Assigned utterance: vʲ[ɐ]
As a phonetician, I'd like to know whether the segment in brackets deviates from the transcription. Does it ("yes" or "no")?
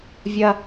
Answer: no